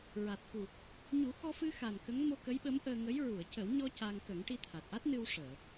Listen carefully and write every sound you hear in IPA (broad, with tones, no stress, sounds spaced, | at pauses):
ɹ a˨˩ t̚ x u˨˩ | ɲ u˨˩˦ x ɔ˧ f ɨ˧ x a˨˩ n k ə˧˥ ŋ m o˧ k ə˧˥ j ɓ ə˧˥ m ʔ əː˧ ŋ ə˧˥ j ɹ u˨˩˨ ə̯ c ə˨˩˦ w ɲ ɔ˧ c a˧ ŋ k ə˨˩˦ ŋ ʈ i˧ t̪ʰ a˨˩ t̚ ʔ a˦˥ t̚ n ɨ˧ w ʂ əː˨˩˨